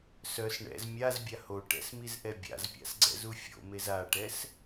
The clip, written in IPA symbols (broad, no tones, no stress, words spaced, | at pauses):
sœs ɳɛ̰z mʲazbʲa hoʈɛ̰s mizʔɛbʲa̰zpʲa̰s ɡ͡ǀɛ̰zufʲo̰mez aʈɛs